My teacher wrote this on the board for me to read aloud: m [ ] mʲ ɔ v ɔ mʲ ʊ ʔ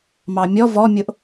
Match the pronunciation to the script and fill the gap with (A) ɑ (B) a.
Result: A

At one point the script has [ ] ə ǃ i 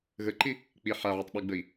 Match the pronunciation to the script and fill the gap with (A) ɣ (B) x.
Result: A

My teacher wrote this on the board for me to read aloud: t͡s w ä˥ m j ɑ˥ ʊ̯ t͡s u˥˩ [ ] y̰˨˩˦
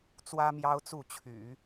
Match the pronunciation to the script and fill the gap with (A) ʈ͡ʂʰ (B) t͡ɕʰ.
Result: B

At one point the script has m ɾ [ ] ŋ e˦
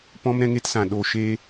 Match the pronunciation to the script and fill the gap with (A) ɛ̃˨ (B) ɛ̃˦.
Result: B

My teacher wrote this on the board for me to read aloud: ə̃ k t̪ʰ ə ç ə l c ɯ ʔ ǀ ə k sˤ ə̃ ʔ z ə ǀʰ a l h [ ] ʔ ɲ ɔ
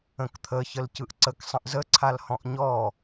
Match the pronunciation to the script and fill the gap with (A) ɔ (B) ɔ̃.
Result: B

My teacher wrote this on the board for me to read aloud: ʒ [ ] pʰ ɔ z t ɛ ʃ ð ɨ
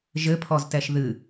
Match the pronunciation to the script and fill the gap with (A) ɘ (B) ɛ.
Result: A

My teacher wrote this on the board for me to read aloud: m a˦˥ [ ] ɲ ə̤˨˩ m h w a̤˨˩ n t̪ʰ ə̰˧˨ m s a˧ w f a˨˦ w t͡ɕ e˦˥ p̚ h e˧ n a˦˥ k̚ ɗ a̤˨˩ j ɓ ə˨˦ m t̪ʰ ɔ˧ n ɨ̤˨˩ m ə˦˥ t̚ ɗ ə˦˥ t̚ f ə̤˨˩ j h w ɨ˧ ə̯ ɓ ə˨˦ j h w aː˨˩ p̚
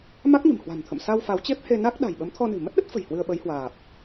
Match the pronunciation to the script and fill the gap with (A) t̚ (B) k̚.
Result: B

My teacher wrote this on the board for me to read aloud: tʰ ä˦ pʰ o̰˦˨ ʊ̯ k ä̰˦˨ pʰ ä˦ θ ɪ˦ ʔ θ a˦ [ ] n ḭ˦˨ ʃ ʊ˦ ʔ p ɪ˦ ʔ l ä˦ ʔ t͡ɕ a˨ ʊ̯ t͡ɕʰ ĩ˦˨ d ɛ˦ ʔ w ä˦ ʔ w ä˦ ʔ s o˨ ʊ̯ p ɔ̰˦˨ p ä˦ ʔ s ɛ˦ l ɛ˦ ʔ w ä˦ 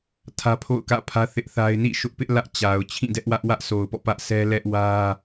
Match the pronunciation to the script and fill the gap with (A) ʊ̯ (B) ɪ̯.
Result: B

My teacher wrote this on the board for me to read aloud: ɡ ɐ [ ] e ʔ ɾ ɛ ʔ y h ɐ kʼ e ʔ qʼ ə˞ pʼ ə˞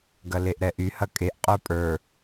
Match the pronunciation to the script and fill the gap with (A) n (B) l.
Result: B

